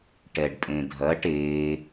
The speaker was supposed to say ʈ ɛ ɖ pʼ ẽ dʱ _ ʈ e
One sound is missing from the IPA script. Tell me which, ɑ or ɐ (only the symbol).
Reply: ɐ